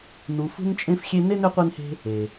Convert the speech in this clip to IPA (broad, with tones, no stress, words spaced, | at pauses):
nu˨ fṳ˦nt͡ʃʼẽ˦fxʲe˦ ne˥nʏ˦qʷe˦nhe̤˦ | e˩